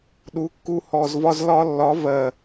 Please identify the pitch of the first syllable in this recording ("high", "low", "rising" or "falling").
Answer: rising